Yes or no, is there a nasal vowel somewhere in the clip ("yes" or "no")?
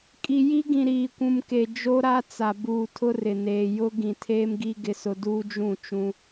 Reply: yes